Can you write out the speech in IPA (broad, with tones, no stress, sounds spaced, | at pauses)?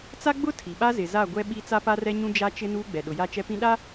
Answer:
t͡s a˦ ɡ͡b ʊ˦ tʰ i˨ ɓ a˦ z ɪ˨ z a˦˨ ɡʷ ɛ˦ ɓ i˦ t͡s a˦ p a˦ r ɛ˦ ɲ ũ˦ d͡ʒ a˦ t͡ʃ ɪ˦ n uː˦ ɡ͡b ɛ˨ ɗ ʊ˨ j a˦ t͡ʃ ɛ˦ p ĩ˦ ɗ a˦